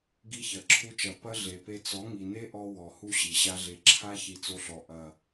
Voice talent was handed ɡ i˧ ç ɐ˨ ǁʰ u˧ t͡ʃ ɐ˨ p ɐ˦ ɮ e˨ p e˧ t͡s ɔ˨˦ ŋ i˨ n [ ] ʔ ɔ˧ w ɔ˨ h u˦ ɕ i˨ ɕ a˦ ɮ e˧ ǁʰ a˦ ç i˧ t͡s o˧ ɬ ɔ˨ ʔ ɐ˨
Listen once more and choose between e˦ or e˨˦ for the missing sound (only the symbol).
e˦